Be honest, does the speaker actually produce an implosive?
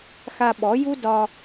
yes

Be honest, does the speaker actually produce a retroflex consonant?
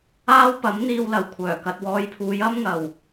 no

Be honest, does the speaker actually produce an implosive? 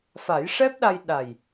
yes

